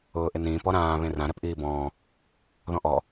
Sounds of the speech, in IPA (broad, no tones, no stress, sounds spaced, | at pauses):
ʊː ʔ ɪ n ĩː p ɔ ɾ ãː β ẽ r ã ɾ ɛ p ʔ iː b ɔ̃ː | ð ɔ̃ ʔ ɔ